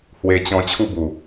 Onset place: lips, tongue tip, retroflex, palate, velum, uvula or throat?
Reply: throat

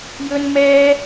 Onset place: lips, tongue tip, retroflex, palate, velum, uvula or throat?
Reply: palate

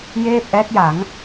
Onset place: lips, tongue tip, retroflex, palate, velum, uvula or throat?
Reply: palate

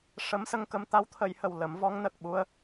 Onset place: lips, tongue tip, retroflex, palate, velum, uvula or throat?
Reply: retroflex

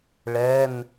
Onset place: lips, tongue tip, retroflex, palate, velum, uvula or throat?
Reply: retroflex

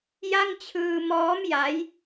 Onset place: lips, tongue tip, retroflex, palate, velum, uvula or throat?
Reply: palate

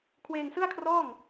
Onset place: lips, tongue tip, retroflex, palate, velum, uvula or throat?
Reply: velum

